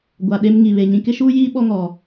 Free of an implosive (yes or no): no